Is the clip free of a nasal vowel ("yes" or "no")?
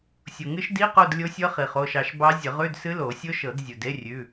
yes